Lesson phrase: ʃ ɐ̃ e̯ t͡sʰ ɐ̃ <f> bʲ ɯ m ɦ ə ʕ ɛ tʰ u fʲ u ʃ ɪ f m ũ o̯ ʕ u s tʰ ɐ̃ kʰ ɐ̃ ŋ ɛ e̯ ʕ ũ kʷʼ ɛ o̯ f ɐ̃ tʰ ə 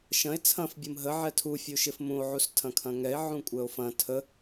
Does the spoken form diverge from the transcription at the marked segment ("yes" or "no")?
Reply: no